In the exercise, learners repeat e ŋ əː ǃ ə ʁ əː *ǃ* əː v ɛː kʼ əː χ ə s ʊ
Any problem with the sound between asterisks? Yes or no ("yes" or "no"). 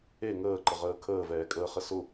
yes